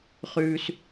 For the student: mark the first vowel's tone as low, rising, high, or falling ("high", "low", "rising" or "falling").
low